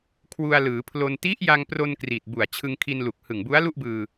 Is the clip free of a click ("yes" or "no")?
yes